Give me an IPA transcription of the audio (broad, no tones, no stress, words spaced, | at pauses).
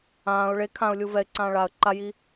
ãːʊ̯ ɭe kʰãʊ̯lʲu vɛɪ̯ǀãː ɭaə̯ ǃaji